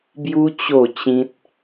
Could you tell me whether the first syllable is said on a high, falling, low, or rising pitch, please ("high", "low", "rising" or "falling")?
high